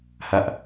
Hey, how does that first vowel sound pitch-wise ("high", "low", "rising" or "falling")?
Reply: falling